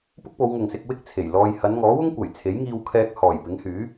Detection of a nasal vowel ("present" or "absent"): absent